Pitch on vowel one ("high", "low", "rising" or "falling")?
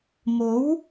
rising